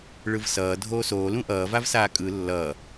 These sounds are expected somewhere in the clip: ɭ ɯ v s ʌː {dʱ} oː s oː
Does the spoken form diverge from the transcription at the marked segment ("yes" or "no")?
no